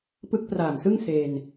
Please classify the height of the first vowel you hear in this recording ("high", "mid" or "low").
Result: high